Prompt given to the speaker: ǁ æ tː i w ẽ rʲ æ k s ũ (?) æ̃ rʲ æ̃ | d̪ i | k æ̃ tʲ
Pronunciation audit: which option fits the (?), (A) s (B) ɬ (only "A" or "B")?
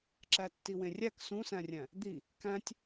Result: A